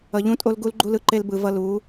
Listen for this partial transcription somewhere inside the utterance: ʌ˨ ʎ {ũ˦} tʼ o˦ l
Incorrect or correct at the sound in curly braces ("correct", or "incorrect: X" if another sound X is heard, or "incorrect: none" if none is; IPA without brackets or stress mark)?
correct